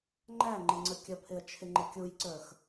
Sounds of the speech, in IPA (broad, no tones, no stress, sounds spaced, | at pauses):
ŋ͡ǃ æ ŋ͡ǃ ɪ ŋ͡ǀ ə kʲ ə pʰ ɪ ə̯ t͡ʃʰ ɪ ŋ͡ǃ ɪ kʲ u j ǀ ə˞ x